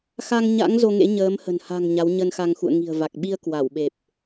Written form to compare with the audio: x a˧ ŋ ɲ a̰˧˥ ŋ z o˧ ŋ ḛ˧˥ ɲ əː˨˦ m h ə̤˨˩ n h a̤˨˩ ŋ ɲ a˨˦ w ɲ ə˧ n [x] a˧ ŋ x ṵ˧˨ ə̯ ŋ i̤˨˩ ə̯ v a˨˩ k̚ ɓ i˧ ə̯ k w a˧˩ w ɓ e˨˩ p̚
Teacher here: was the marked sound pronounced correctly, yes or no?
yes